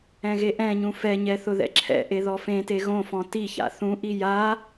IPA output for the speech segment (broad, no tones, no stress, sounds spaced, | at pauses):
ɛ̃ ɣ e ʔ ɛ̃ ɲ ũ f ɛ ɲ ɛ θ ʊ ð ɛ̰ ǁʰ ɛ̰ ʔ e ð ɔ f ẽ t e ɣ õ f ɔ̃ t i ç a̰ θ ũ ʔ i j a